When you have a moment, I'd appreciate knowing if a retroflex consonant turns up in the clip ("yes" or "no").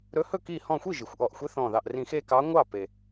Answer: no